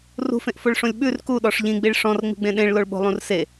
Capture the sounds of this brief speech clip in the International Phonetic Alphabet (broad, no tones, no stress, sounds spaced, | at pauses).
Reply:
r ṳ f ẽ ʔ f o ɭ ʂ õ lʲ ɓ ʉ r k u ɗ ɔ ʂ ʎ ĩ ɡ͡b i ɭ ʂ ɔ̃ r ŋ͡m i̤ ɡ͡b ẽ ɗ ẽ ɭ l o ɭ ɓ o̤ lˠ ũ r s e